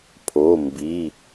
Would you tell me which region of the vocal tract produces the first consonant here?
lips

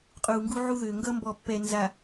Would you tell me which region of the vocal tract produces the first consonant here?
uvula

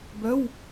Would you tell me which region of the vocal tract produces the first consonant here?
lips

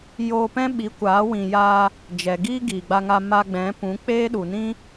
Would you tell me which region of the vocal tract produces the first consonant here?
palate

